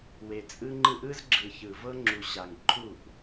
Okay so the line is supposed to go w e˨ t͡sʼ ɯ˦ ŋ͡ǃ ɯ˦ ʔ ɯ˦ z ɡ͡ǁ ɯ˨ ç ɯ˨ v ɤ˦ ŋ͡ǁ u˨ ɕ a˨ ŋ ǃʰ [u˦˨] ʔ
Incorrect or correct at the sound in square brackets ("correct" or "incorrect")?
correct